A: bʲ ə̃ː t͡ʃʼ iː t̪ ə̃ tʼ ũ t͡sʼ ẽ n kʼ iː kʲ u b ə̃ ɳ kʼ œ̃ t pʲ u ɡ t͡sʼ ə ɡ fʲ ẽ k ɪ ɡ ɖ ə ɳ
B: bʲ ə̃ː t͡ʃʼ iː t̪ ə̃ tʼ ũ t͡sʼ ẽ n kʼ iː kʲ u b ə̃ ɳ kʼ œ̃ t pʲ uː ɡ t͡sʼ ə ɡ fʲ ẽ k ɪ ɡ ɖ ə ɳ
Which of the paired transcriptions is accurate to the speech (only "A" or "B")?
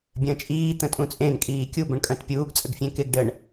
B